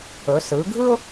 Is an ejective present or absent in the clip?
absent